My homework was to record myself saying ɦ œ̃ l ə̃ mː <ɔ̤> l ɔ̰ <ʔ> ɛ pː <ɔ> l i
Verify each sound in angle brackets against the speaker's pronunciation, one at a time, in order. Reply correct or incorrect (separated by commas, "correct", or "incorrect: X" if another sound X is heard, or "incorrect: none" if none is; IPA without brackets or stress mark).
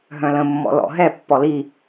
incorrect: ɔ̰, incorrect: ɦ, correct